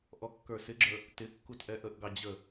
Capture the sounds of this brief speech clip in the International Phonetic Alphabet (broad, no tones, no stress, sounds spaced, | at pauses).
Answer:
ʔ ɔ kː ə˞ s ɪ ɡ͡ǁ ə˞ | t ɪ kː u t ʔ ɛ ʔ ə ʔ ɡ ɑ d͡ʑ ə